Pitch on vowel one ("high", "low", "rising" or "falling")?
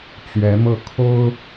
rising